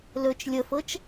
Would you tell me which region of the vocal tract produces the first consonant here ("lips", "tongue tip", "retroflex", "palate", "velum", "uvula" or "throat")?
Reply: tongue tip